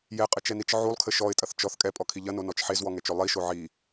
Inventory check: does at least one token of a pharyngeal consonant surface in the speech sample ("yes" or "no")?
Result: yes